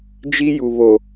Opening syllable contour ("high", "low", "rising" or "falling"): high